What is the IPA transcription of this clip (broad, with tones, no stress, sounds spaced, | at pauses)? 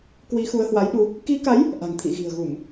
k w i˨˦ x u˨˦ ə̯ h w a˨˦ j ɗ u˧ | k i˨˦ k a˨˦ j | ʔ a̤˨˩ ŋ t̪ʰ ḭ˧˨ ɣ i̤˨˩ ə̯ ɣ u˧˩˨ m